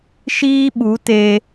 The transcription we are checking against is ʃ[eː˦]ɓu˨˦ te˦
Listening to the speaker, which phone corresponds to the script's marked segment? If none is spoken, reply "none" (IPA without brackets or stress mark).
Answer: iː˦